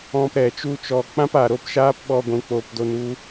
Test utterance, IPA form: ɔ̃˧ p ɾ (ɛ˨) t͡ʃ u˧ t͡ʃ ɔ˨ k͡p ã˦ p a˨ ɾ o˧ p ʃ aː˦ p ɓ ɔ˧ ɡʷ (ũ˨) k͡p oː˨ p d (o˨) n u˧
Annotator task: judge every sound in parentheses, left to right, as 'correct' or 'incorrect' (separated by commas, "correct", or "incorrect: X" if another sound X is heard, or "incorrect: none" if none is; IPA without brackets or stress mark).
correct, correct, incorrect: o˧